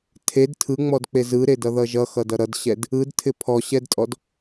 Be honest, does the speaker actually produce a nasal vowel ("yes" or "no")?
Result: no